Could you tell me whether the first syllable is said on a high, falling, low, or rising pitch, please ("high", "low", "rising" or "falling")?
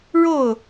falling